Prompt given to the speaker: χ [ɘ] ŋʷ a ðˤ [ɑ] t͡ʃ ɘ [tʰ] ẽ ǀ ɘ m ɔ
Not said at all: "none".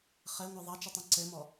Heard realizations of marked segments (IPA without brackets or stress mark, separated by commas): ɘ, ɑ, tˤ